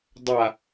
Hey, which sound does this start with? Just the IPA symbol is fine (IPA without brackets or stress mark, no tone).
dˤ